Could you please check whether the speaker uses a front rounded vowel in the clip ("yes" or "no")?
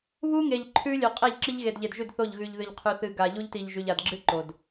no